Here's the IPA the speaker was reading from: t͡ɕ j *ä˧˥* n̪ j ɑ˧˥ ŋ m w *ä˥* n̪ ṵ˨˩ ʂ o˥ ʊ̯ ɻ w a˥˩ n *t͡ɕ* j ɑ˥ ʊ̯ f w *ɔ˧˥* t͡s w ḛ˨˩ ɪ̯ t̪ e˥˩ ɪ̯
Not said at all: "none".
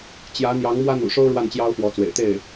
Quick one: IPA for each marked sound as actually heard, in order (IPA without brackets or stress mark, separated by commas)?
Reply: ä˧˥, ä˥, t͡ɕ, ɔ˧˥